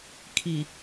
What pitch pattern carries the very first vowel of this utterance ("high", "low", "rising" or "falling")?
low